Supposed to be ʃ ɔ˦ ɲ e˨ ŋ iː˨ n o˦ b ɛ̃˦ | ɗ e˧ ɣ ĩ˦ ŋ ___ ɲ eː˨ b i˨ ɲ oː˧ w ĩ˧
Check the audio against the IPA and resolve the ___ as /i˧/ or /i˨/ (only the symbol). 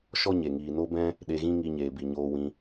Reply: i˧